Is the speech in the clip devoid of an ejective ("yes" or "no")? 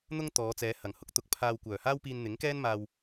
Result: yes